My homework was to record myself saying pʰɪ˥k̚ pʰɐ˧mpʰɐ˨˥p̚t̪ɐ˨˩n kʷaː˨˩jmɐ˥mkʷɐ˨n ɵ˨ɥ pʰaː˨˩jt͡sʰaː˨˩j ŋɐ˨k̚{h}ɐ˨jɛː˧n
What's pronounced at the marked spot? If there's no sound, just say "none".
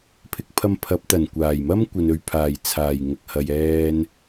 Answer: h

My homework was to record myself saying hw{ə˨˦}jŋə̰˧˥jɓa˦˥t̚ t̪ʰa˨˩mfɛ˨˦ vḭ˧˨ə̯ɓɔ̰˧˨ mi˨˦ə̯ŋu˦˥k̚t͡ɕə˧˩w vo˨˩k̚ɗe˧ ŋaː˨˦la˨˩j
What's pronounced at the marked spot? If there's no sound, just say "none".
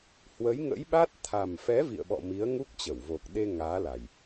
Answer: ə˨˦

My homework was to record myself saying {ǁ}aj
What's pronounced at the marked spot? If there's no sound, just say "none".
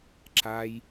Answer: ǁ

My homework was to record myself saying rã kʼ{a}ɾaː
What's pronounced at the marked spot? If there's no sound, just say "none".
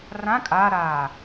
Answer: a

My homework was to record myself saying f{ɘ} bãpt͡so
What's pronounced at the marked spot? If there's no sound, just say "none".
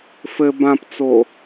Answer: ɘ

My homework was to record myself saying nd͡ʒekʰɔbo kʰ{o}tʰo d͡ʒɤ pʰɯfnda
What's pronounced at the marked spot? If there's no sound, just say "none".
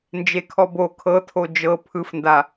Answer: ɤ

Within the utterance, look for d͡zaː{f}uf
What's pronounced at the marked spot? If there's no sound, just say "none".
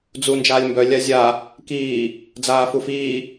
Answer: f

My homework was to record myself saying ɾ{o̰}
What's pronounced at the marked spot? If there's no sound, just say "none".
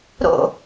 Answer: o̰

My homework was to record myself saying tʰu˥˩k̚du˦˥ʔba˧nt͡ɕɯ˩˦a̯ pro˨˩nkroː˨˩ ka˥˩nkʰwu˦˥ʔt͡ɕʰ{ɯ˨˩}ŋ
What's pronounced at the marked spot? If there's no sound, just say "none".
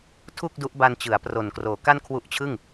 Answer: ɯ˥˩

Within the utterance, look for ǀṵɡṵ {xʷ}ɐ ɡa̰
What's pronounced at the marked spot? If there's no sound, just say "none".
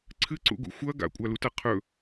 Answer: xʷ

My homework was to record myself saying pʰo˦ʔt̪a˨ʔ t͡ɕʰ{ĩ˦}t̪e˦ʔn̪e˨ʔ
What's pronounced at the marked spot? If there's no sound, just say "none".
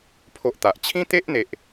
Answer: ĩ˦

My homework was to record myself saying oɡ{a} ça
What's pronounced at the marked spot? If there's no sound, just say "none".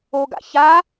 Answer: a̰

